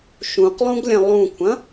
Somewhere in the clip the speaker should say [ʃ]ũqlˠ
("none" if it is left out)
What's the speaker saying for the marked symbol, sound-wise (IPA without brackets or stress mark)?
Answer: ʃ